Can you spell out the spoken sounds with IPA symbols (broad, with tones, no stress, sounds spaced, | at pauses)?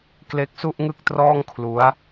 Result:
k l e˦˥ k̚ s u˥˩ ʔ ŋ ɯ˥˩ k̚ t r ɔː˥˩ ŋ kʰ l u˦˥ a̯